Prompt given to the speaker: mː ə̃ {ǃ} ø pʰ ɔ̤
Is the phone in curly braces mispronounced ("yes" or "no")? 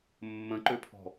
no